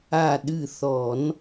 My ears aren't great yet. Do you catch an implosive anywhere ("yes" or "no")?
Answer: yes